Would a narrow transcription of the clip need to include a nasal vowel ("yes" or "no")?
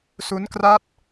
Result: no